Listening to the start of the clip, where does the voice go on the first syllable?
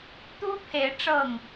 high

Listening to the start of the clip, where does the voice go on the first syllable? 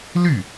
falling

